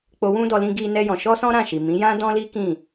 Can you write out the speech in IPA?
k͡po˧wũ˦dɔ˧ lĩ˦ɡi˦nɛ˦jɔ̃˧ ʃɔ˦sɔ̃˦ɾã˦˨ʃi˨ mĩ˨˦jã˦ dɔ̃˦li˦ kĩ˦˨

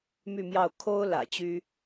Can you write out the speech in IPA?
my˥˧mjɑ˥˩ʊ̯ kʰo˥ʊ̯ lä̰˨˩t͡ɕy˥

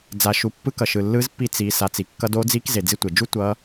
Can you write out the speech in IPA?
d͡za˩ʃu˩pːɯ˧ kʌ˩ʃɯ˩ lːɯ˧˥zpːi˧ t͡si˩˧ sa˩˧t͡si˩ kːʌ˧do˧˥d͡zi˧˥k ze˩d͡zi˧ tʷe˩d͡ʒu˥ tʷʌ˧˥

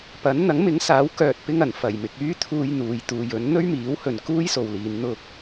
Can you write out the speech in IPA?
pɐ˨˥n n̪ɐ˨˥ŋmɪ˨˥ŋsaː˨˥w kœː˧t̚pɪ˥ŋɐ˨˩n fɐ˨˩jmɪ˨k̚yː˥t̪ʰuː˧j n̪uː˨jt̪uː˨jɵ˨˥n n̪ɵ˥ɥmiː˨˥whɵ˨n kuː˥jso˨wliː˨˧n n̪ʊ˧k̚

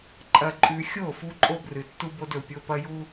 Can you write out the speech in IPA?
ǃʼɐ˨ǃʼʉ˨ xʲo˦˨fu˦ ǃʼo˦brɨ˨tːu˦bo˦d ɵ˨ pʲo˦pɐ˦ju˦

